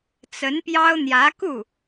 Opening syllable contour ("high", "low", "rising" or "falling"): rising